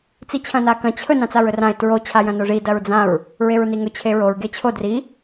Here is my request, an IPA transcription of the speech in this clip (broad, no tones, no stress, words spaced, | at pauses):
t͡sit͡ɕʰɐ̃nakɐ̃ t͡ɕʰɵ nãt͡saɹɵrãɪ̯ tɹo t͡ɕʰajɐ̃noʐi dɐɹd͡zãɹ | ɹeɹniŋɵ t͡ɕʰeɹoɹ ɡet͡ɕʰo dri